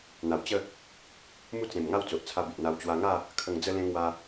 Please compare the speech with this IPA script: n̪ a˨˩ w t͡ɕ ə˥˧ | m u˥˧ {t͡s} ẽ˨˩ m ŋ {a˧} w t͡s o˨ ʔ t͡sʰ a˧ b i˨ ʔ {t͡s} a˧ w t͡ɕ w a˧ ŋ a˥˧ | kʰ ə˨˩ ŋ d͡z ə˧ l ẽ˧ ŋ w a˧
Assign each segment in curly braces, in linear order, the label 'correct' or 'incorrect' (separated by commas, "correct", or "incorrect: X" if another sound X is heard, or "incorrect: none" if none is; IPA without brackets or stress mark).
correct, incorrect: a˥˧, incorrect: n̪